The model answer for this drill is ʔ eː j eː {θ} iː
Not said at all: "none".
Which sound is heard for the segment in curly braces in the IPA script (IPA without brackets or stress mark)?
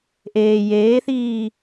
θ